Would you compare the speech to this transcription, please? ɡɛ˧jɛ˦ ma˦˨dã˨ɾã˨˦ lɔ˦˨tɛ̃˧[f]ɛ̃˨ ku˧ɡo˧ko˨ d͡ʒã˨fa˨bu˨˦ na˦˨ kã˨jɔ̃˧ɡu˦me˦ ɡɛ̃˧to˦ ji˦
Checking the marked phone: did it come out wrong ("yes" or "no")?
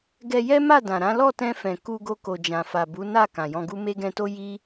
no